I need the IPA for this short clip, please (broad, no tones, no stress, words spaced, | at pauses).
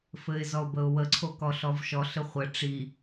fɘɪ̯zɔʊ̯bəʊ̯wə ǀʰokɔɬɔvʃɔ ɬɘχʷə ʈ͡ʂi